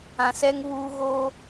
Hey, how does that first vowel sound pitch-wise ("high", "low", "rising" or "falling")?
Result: low